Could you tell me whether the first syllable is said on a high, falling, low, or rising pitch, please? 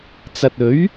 low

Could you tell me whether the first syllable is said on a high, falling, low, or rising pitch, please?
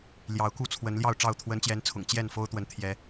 rising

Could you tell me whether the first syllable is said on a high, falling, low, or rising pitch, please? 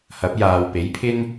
rising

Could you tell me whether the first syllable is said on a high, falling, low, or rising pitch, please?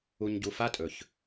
low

